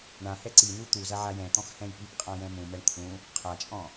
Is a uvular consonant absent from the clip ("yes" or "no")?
no